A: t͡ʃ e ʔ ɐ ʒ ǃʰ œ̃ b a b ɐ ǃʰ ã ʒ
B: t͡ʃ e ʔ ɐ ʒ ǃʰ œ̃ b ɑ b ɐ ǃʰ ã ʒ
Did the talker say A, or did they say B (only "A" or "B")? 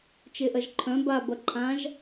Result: A